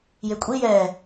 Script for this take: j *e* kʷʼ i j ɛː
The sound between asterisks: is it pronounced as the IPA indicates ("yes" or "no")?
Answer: yes